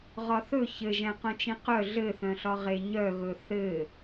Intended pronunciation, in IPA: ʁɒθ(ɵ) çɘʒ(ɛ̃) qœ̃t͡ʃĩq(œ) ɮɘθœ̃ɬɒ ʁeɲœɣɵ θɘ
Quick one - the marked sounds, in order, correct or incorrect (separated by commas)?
correct, correct, correct